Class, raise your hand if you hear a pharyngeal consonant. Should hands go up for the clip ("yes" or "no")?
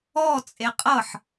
yes